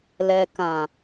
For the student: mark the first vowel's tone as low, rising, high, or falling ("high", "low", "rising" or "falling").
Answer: low